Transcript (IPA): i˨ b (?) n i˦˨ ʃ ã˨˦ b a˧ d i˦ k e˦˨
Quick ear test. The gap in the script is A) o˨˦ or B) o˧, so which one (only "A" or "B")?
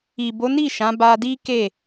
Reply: A